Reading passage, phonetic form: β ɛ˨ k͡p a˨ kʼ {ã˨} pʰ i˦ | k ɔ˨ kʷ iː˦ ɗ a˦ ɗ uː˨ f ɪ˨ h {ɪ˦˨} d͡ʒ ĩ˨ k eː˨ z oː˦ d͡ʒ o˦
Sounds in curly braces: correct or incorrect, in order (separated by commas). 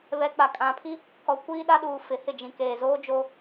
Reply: correct, correct